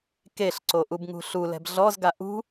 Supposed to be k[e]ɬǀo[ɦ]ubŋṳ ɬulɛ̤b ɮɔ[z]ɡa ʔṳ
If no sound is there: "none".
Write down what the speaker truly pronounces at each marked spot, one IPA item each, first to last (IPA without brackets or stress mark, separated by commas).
e, ʔ, z